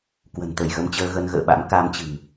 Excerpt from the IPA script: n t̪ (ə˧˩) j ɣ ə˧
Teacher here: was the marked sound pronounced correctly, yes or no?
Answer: yes